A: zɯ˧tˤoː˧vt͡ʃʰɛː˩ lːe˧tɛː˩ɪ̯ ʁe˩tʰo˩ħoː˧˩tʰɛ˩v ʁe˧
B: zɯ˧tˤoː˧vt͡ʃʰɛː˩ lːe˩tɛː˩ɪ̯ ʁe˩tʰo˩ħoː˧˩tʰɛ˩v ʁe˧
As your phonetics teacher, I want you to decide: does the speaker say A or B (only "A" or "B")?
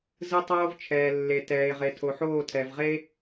B